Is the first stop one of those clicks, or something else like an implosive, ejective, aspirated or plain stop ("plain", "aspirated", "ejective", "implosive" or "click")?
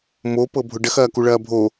plain